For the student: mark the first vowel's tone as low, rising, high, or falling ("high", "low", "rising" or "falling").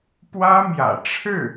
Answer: high